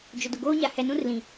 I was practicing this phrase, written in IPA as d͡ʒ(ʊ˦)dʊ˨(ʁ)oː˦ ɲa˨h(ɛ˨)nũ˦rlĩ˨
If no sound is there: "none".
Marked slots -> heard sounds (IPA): ʊ˨, ɡ, ɛ˨

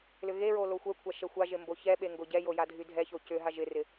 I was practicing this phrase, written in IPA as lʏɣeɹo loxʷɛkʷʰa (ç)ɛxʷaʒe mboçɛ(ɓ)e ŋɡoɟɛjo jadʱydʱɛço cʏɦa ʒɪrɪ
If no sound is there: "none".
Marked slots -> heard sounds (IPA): ʃ, ɓ

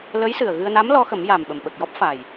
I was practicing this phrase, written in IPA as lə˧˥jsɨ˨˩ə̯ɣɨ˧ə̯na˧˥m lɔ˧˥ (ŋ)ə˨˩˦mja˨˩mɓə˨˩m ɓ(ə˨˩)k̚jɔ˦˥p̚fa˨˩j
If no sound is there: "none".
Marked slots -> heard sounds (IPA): x, ə˨˩

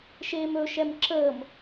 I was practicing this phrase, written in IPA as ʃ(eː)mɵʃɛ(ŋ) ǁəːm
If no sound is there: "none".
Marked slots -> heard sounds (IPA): eː, m

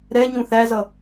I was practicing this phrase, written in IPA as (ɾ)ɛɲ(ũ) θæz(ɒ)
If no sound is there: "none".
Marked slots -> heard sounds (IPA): ɾ, ũ, ʌ

